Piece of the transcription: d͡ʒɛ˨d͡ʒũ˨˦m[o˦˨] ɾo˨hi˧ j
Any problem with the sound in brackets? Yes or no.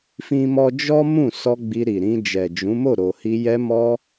no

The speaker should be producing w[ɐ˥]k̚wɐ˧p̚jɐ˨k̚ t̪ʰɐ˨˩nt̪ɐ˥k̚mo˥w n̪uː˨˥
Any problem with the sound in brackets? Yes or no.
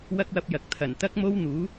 no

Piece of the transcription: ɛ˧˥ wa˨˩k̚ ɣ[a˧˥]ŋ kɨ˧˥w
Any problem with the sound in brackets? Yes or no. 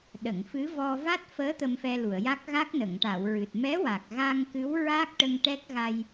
yes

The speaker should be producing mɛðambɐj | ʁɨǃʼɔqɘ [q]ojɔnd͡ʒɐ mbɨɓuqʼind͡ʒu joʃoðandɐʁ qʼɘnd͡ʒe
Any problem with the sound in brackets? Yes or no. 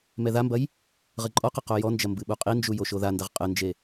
no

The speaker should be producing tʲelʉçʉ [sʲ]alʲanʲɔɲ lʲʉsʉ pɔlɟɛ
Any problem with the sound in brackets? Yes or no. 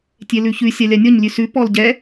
no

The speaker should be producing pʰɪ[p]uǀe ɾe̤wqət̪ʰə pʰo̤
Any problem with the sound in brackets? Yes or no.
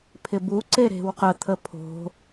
yes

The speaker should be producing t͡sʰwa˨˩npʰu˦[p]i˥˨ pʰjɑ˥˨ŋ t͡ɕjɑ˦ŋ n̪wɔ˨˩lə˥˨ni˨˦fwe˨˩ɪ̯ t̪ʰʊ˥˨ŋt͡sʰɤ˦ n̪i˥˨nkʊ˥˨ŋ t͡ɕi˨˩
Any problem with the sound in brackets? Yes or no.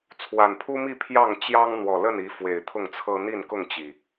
yes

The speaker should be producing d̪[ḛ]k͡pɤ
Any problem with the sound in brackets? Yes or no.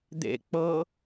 no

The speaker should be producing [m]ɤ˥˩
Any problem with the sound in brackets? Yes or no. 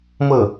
no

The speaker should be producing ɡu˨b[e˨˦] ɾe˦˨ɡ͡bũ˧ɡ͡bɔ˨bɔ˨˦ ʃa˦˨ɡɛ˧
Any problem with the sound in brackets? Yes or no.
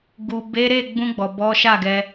no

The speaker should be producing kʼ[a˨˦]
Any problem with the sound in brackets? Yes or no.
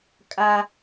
yes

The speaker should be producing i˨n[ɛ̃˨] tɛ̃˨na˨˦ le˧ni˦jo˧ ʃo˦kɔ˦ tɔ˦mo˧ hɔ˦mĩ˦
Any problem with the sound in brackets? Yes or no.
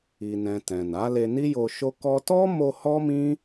no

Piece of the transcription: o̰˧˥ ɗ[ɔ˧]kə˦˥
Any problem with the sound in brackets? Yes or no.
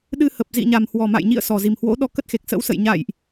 no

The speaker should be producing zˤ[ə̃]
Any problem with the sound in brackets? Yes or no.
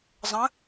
no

